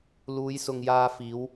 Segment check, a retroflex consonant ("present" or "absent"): absent